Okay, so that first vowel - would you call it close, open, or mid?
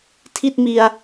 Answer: close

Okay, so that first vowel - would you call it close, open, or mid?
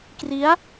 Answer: close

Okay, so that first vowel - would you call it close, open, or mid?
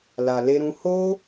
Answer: open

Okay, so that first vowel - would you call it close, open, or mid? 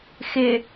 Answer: close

